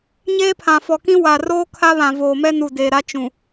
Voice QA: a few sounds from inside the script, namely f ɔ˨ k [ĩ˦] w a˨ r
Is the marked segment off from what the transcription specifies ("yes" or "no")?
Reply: no